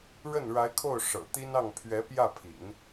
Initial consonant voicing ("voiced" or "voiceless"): voiced